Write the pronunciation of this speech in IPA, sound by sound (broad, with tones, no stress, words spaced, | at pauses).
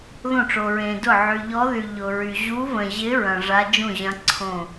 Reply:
ðõ˥˩ʈ͡ʂo˨ɹẽ˨dʊ˥˩ ʕy˨ʎɔ˧˥ðy˨ ʎʊ˨ɹy˨ ʑu˧˥və̃˨ʑɪ˧˥ ɹɐ̃˨ ʐa˧˥d͡ʒũ˥˩ʑɐ̃˧˥ ǀʰõ˥˩